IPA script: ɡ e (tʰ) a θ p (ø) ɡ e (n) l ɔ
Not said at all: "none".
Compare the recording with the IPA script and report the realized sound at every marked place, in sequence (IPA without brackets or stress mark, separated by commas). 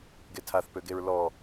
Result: tʰ, ø, ɹ